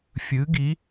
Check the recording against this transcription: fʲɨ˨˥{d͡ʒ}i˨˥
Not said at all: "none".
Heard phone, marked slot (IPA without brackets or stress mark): ɡ